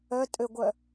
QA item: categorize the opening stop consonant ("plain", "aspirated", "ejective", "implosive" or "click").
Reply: ejective